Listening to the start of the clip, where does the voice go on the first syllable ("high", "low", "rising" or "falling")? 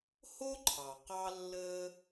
high